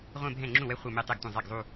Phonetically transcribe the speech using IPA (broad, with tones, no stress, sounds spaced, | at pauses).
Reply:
ʁʷ ẽ˥˧ bʱ ɛ̃˥˩ ŋ͡ǁ ũ˥˩ w ɛ˥˧ χʷ ɛ˥˧ m e˥˧ tˤ e˥˩ ɡ tʷ ɛ̃˥˩ zˤ e˥˩ ɡ zˤ u˥˧